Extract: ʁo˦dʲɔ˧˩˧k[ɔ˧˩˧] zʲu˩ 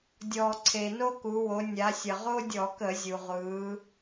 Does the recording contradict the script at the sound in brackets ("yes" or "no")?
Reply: yes